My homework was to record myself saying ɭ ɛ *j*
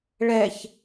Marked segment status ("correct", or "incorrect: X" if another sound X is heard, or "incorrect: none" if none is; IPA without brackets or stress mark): incorrect: ç